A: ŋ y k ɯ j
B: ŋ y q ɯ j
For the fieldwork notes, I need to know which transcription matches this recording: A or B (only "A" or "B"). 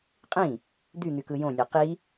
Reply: A